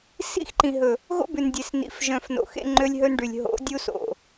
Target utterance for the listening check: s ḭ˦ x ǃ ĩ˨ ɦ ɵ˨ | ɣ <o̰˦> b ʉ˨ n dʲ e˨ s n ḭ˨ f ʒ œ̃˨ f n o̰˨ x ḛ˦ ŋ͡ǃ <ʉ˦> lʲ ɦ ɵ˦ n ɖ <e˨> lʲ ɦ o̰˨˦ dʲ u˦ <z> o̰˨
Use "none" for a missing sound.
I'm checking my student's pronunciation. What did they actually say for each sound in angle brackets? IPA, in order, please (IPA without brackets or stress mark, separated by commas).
o̰˦, ø˦, y˨, s